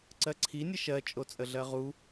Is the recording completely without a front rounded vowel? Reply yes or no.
yes